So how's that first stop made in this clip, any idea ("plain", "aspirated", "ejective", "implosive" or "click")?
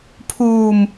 aspirated